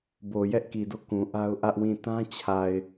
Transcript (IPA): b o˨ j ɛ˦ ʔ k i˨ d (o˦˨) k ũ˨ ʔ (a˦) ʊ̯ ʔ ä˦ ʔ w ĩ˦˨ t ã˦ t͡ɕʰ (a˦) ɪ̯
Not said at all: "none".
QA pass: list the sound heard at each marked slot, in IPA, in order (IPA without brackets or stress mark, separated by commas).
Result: o˦˨, a˦, a˨